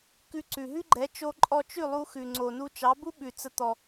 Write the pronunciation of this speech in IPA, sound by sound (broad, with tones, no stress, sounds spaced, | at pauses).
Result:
k ʉ˧ ǀ ʉ˩ ɦ ʉ˥ ɡ͡ǃ ɛ˩˥ t͡ʃ o˧ ǃʼ ɔ˧ t͡ʃ ʉ˥˩ lˠ u˧ x ʉ˩ ŋ͡ǀ o˩ n u˧ t͡ʃ ɑ˩˥ b u˥ ɓ ʉ˩ t͡s ə˩˥ t̪ ɔ˩